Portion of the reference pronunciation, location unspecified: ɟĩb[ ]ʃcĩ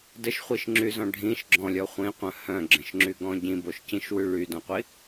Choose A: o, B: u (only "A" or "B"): A